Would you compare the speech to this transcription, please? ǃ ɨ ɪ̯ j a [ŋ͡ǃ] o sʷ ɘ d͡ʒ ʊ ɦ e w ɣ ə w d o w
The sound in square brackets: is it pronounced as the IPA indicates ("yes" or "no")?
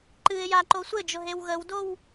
no